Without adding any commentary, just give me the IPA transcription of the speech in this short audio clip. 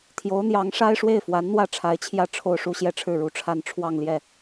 t̪ʰ j o˧˥ ʊ̯ n̪ j ɑ˧˥ ŋ ʂ a˥ ɪ̯ ʂ w e˥˩ ɪ̯ f w a˧˥ n n̪ w ä˥˩ ʈ͡ʂʰ a˧˥ ɪ̯ t͡ɕʰ j ä˥˧ ʈ͡ʂʰ o˥˧ ʊ̯ ʂ u˥˧ ɕ j ɛ˥˧ ʈ͡ʂʰ ɻ̩˥˩ ɻ u˧˥ ʈ͡ʂʰ a˥˧ n ʈ͡ʂʰ w ɑ˥˧ ŋ l j ɛ˥˩

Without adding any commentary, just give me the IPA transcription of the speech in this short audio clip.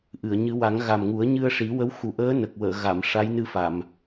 ʔ ɨ˨˩˨ ə̯ ɲ ɨ˨˩˦ w a˨˩˦ ŋ ɣ a˨˩ m ŋ u˨˩˦ ə̯ ɲ ɨ˧ ə̯ ʂ i˨˩˦ w ə˧˥ w x u˨˩ ʔ əː˧˥ n ə˨˩ k̚ w əː˨˩˨ ɣ a˨˩˨ m ʂ a˧˥ j n ɨ˧ f a˨˩˨ m

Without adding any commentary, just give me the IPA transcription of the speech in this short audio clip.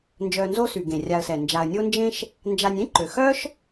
n d͡ʒ œ˨ n z o˦ s y˩ ɡ ẽ˩ rʲ a˨ ə̯ s ɛ˩ n d͡ʒ a˨ ə̯ nʲ o˦ n d͡ʒ ẽ˦ ʃ | n d͡ʒ a˨ nʲ ẽ˥ ǃ ø˩ x œ˥ ʃ

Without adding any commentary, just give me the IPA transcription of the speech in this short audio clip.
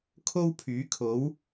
kʰ o˥ w pʰ yː˨˥ kʰ o˨˥ w

